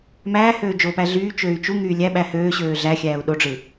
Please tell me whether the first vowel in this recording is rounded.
no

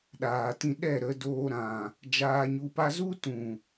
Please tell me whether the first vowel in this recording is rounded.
no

